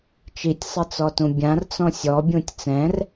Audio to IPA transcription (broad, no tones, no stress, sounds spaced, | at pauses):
t͡ʃ i tʲ sˤ ɘ t͡s ɔ t ũ bʲ ã r t͡s ɔ̃ sʲ ɔ bʲ ũ tʲ t͡s ɛ̃ r